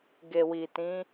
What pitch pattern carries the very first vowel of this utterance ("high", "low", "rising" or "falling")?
low